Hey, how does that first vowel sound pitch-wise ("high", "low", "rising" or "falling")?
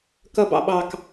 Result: low